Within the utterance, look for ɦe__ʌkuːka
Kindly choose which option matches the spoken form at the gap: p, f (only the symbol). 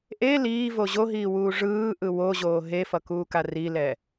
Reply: f